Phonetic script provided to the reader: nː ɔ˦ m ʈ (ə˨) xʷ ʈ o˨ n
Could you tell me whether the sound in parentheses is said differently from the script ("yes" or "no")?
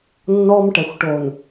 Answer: yes